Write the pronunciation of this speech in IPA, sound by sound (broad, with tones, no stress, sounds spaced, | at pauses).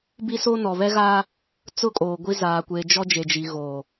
b i˦ s o˦ n ɔ˨ β ɛ˦ ɣ aː˦ | t͡s ʊ˦ kʼ oː˨ ɡʷ i˦ z aː˨ kʷ eː˨ d͡ʒ ɔ˦ d͡ʒ e˨ d͡ʒ i˨ ɣ oː˨